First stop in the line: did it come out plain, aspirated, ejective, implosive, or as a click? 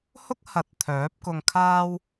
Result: plain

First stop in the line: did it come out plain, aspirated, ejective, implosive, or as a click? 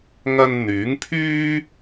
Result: aspirated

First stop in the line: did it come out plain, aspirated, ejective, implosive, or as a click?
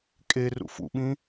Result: ejective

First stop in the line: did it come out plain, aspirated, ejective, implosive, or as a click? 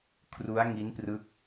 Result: aspirated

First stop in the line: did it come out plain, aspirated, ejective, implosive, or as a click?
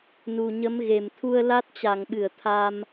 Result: aspirated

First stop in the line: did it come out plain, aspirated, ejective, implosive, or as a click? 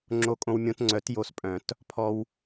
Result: click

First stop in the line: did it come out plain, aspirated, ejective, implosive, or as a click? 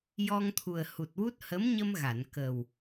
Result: aspirated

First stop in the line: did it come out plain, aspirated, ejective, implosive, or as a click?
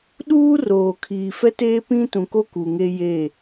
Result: implosive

